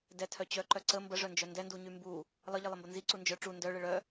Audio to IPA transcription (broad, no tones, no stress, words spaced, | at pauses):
dɛtʰœ t͡ɕœǃœ ǀə mbəʐœnd͡ʒœ ndɛnduɲy mbu | lˠəʎilˠəmbə nziǀu nd͡ʒœ ʈ͡ʂu ndœɭə ɭœ